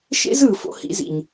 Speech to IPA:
ʃḛ˦zɯː˨fo̰˧ hḭ˧zḭ˨ɲ

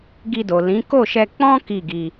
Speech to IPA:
ɡi˧do˨ lĩ˨˦ ko˦˨ʃɛ˧k͡pɔ̃˦ ki˦˨ɡi˧

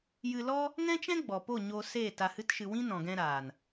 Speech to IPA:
jɨ˧lɔ˦ | ŋɛ̃˦t͡ʃɛ̃˦ ɡ͡bɔ˨po˦˨ ɲo˧seː˦˨ ta˧hɨ˦tʃɨ˧ wĩ˦nɔ̃˨ɡɛ̃˧ɾaː˨n

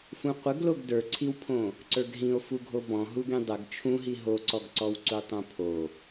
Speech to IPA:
fũqʷəɡloɡ də˞ǀʰiwpʰõ | ǀə˞ɡɦĩo̯fuɡʱo bɔ̃ɦuɡĩ dˤəɡ t͡ʃʰũɦi ɦoǀɔɡǀɔw ǀutˤõpʰo

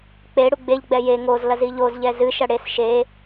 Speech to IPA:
k͡pe ɽuɡ͡beʎɡ͡bɛ je ŋozlɐ ziʎozʎɛ zɨʃɐ ɽes ʃe

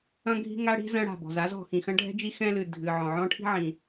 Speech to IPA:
ɐ̃˥ɡʱi̤˥ŋa˥ɽi̤˥ zɐ̃˥ɽa̤˩bɔ̤˩z a˥zɔ̤˩ xĩ˩xɐ̃˥ɖʱɛ̤˥d͡ʒi˥ xɛ̃˥lɨ˩ dʱɨ˩ ʕɔ̃˩ʕɔ̃˥ʈʰi̤˥ ʕĩ˩

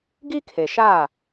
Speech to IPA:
ɡi˦kʰe˨ʃaː˦˨

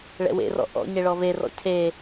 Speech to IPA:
ɭɛ̰wḛrɔ̰ ʔɔ̰ ɲeɭɔverɔ̰ cʰe

